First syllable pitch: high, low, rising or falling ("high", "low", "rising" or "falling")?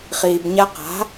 low